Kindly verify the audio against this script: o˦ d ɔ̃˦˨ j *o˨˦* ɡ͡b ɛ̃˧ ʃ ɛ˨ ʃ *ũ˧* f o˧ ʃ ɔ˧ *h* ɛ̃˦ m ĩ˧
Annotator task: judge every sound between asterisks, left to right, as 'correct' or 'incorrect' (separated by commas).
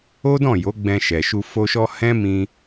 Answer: correct, incorrect, correct